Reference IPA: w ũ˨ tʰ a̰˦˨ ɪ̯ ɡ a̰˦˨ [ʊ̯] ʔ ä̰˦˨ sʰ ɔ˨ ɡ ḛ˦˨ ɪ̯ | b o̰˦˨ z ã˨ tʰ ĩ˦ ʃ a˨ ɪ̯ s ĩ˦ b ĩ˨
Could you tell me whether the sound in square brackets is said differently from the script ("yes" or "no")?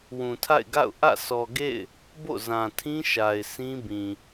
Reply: no